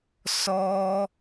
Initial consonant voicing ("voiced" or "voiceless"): voiceless